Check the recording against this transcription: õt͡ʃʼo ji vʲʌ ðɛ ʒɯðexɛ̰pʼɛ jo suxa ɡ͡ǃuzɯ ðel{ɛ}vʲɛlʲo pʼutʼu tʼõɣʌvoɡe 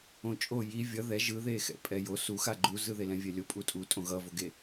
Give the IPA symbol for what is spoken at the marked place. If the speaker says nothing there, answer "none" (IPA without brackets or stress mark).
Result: ɛ̃